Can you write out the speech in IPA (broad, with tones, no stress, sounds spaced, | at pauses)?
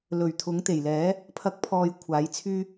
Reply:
l ɵ˨˩ ɥ t̪ʰ ʊ˨˥ ŋ t̪ e˨˩ j l ɛː˨˥ | pʰ ɐ˨˥ k̚ pʰ ɔː˨ j kʷʰ aː˨˥ j t͡sʰ yː˥